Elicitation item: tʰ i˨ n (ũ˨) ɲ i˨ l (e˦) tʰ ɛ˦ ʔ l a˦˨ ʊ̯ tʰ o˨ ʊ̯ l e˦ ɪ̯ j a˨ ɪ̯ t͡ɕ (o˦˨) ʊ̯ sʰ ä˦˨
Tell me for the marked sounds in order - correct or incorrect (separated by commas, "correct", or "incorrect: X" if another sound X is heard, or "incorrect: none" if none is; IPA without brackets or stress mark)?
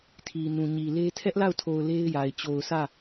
correct, correct, incorrect: o˨